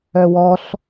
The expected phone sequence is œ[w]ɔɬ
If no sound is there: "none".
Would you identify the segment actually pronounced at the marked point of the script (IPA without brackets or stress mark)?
w